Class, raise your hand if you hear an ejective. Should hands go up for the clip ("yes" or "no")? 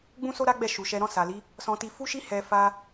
no